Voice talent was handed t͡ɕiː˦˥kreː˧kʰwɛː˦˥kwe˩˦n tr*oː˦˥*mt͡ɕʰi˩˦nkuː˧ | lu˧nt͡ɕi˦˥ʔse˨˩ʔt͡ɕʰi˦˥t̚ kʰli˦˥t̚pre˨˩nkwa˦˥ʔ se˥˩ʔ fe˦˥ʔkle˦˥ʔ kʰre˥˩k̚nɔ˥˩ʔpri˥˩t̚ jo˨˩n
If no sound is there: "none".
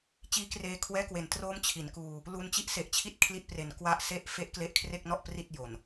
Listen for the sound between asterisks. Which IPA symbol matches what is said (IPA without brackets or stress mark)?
oː˦˥